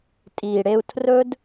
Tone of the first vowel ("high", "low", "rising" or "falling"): low